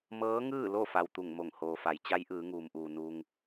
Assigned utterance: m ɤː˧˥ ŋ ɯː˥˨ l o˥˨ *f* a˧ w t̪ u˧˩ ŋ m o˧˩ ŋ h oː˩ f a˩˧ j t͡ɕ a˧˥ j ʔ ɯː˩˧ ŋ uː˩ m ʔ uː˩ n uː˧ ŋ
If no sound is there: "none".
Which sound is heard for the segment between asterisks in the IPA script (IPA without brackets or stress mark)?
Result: f